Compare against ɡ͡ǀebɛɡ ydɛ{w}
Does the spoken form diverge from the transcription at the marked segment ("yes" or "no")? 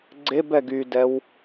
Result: no